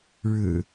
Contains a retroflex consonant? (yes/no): yes